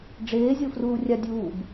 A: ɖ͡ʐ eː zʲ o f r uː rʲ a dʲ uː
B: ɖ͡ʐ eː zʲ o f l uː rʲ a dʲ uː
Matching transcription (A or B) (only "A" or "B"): A